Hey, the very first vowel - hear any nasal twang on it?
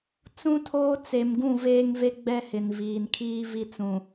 yes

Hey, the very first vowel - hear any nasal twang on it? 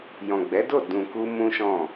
yes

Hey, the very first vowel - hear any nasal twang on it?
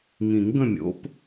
yes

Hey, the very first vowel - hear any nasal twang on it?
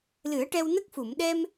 no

